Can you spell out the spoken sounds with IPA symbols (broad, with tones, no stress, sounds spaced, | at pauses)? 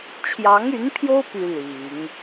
t͡ɕʰ j ɑ˧˥ ŋ y˧˥ n pʰ j o˥ ʊ̯ p y˥ l i˨˩˦ ŋ